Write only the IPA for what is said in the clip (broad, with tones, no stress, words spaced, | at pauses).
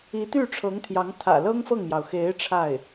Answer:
i˧˥t̪y˥˩ʈ͡ʂʰɤ˧˥ŋ t̪ʰjɑ˧˥ŋ t̪ʰä̰˨˩lɤ˥ŋ fɤ˥˩ŋmjɑ˩ʊ̯ xe˧˥ɪ̯ ʈ͡ʂʰa˥˩ɪ̯